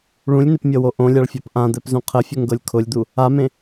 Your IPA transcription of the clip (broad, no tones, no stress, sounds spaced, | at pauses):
ɭ ũ lʲ n ɪ p mʲ ɤ w o ʔ õ lʲ a ɭ fʲ a p ʔ ã d̪ ɛ p z ũ qʰ ə fʲ ʊ ŋ ɡ ɤ lʲ kʰ ʊ lʲ d̪ u | a m ẽ